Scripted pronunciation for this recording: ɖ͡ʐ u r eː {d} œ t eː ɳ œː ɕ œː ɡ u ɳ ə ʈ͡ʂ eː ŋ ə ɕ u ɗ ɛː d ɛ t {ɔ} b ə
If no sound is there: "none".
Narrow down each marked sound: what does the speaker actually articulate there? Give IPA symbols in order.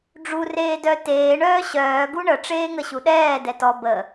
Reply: d, ɔ

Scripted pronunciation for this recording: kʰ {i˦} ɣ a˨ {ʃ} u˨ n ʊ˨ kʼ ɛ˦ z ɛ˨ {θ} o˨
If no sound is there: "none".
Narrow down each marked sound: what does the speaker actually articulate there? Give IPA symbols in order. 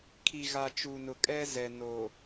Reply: i˨, t͡ʃ, n

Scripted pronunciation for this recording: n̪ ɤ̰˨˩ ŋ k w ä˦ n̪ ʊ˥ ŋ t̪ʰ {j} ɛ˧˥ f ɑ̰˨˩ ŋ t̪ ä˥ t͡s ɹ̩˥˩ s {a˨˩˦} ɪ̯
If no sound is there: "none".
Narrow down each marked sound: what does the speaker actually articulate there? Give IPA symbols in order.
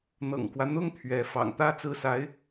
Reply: ɥ, a˧˥

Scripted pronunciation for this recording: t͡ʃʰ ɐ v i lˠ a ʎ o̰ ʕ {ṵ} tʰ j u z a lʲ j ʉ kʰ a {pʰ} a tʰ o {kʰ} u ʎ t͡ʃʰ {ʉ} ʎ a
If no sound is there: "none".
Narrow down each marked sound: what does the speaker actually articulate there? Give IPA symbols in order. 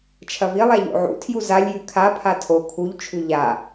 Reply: ṵ, pʰ, kʰ, ʉ

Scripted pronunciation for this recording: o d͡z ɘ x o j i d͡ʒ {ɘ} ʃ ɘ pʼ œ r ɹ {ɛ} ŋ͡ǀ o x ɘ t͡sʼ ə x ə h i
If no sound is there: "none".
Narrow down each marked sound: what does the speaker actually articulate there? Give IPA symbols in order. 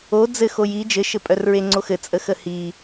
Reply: ɘ, e

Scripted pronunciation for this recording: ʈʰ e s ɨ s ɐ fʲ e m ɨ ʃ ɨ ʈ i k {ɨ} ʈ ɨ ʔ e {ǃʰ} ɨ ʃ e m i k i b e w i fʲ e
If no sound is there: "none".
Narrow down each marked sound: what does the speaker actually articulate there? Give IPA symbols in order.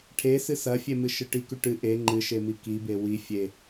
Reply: ʉ, ŋ͡ǃ

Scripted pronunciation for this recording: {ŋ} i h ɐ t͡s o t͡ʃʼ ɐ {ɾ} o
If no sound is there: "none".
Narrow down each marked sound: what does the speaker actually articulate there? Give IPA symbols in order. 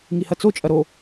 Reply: ŋ, ɾ

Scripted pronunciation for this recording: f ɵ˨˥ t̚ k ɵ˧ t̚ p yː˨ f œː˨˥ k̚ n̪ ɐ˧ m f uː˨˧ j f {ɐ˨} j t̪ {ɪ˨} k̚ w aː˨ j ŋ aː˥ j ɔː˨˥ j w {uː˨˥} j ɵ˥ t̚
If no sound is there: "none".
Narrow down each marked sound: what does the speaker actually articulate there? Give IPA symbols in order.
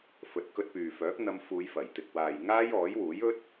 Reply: ɐ˨˩, ɪ˨, uː˨˥

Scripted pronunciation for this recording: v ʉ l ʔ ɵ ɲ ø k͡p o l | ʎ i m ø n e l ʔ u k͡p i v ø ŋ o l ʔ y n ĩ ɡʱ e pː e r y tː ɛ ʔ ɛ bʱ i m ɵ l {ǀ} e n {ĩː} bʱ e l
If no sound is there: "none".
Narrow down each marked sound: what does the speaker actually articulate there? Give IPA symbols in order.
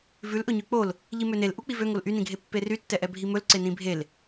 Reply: ǀ, ĩ

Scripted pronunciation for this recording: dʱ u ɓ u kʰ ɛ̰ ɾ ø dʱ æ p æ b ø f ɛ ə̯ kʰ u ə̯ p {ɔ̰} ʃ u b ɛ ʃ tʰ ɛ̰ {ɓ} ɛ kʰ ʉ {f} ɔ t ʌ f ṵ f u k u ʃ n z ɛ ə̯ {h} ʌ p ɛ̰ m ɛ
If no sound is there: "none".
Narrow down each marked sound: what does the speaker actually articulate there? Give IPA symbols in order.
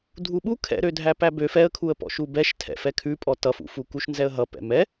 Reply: ɔ̰, f, pʼ, ɦ

